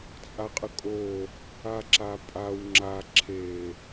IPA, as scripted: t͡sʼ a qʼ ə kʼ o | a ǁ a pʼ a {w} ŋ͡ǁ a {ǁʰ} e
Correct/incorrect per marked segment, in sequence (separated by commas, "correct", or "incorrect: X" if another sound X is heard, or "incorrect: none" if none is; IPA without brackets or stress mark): correct, correct